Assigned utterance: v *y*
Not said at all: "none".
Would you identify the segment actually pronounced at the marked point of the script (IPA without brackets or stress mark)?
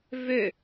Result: ø